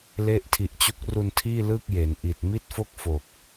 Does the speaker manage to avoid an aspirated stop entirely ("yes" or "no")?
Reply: no